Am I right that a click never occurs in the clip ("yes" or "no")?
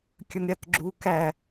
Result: no